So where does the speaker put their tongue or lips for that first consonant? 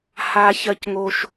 throat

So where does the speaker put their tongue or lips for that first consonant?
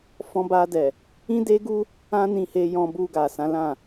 lips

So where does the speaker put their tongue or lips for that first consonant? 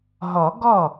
throat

